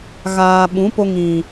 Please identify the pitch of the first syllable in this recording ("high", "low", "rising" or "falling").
low